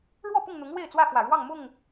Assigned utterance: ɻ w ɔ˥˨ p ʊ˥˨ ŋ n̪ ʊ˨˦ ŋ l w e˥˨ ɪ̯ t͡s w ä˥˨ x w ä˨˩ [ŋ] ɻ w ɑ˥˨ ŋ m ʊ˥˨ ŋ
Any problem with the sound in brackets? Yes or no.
yes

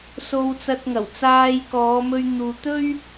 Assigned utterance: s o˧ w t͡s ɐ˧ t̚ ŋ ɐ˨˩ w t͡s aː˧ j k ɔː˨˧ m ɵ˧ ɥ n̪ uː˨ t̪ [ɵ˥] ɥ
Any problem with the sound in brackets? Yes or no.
no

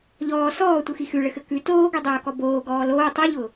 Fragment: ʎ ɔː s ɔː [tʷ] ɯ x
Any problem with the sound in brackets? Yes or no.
no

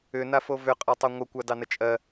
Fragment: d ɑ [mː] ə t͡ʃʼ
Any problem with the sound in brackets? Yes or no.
yes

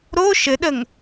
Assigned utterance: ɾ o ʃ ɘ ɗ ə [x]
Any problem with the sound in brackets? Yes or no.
yes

